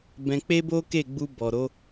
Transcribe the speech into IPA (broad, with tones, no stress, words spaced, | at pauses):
bɛ̃˧ k͡pe˦bo˦ke˦˨ɡ͡bu˧ bɔ˨ɾo˨˦